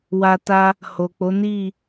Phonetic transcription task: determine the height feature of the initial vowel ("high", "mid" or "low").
low